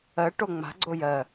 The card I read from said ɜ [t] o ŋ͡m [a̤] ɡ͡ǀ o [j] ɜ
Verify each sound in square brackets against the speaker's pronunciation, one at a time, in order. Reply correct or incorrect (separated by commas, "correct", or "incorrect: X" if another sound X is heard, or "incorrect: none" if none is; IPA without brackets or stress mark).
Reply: incorrect: ʈ, correct, correct